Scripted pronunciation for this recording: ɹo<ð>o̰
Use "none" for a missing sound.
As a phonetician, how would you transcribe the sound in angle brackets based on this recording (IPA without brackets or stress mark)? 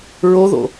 ð